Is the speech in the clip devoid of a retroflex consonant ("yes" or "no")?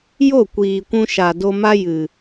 yes